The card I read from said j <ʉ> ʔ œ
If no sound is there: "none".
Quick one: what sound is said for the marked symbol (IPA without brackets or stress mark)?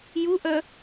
u